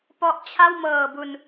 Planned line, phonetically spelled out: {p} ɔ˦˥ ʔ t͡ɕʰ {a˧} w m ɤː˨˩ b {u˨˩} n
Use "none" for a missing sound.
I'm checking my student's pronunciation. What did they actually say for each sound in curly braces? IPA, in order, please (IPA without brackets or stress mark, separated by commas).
p, a˥˩, u˨˩